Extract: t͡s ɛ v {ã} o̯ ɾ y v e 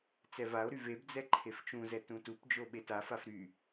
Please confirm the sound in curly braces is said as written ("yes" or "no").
no